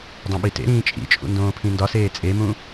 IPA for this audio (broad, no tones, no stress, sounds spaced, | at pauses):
dˤ õ ɓ i t ḛ ɾ ĩː t͡ʃʼ ḭ t͡ʃʼ ṵ n d õː pʰ ĩ n d ɒ s eː t͡sʼ e m ũ